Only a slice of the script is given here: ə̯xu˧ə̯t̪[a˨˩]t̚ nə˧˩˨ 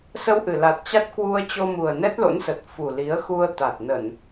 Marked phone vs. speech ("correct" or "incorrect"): correct